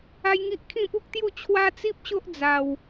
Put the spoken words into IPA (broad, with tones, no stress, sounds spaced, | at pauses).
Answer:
a˦ j ŋ i˦ ʔ kʰ ĩ˥˧ p u˦ k̚ t̪ j u˥˧ t͡ɕʰ w a˦ t͡s i˦ p̚ ɕ o˦ ʔ d͡z a˧ w